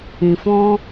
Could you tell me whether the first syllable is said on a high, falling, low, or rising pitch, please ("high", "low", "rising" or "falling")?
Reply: low